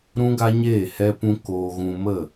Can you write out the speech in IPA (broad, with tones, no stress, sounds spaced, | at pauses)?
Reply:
ɾ ũ˦ ɡ a˦ ɲ eː˦˨ h ɛ˧ p ũ˧ k oː˧ ɣ ũ˧ m ə˦˨